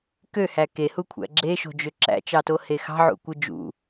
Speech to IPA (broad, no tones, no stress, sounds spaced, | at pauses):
k ø h æ k e h u kʷʰ æ̰ ɡ͡ǁ e ʃ o̤ d͡ʒ ø ǁ æ̰ t͡ʃ ɑ t o h e x ɑ̤ ʕ ṵ kʷ ɯ d͡ʒ ṵ